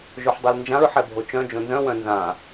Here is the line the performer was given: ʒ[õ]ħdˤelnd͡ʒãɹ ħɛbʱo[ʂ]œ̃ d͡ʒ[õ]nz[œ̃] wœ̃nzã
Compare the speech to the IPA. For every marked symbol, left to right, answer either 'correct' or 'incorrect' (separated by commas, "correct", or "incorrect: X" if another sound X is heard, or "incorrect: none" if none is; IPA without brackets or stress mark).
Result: incorrect: o, incorrect: t͡ʃ, correct, correct